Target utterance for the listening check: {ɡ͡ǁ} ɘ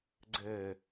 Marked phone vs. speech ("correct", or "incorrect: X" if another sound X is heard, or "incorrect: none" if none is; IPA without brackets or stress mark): incorrect: ɡ͡ǀ